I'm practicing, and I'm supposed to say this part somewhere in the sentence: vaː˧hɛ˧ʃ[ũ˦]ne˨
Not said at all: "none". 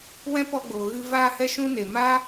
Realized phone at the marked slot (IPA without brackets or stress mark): ũ˧